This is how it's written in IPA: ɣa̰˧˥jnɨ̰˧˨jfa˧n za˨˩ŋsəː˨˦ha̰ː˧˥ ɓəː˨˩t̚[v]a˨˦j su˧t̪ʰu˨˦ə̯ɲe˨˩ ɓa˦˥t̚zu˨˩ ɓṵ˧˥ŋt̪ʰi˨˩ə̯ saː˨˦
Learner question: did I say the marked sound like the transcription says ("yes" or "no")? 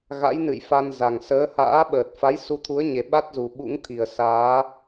no